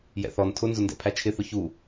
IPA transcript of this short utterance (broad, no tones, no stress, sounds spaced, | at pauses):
j ɛ̰ θ ɔ n tʰ ʊ n z ʊ n d ɛ̰ pʰ æ t͡ʃʰ ɪ θ ʊ ç u